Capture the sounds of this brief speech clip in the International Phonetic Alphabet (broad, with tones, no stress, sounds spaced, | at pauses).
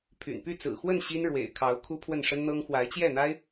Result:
pʰ y̰˨˩ n p y˥˩ t͡s ɹ̩˨˩ x w ə˥˩ n ɕ i˥ n ɻ w ḛ˨˩ ɪ̯ kʰ ɑ˧˥ ʊ̯ kʰ u˥ pʰ w ə˥˩ n ʂ ə˥ n n̪ ɤ˥ ŋ x w a˧˥ ɪ̯ t͡ɕ j ɛ˥˩ n̪ a˥ ɪ̯